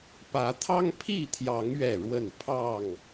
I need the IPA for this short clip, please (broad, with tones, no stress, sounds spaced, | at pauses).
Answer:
p ä˨˦ t̪ʰ ɑ˦ ŋ pʰ i˥˨ t̪ʰ j ɑ˨˦ ŋ ɥ ɛ˥˨ ɻ w ə˥˨ n pʰ ɑ˥˨ ŋ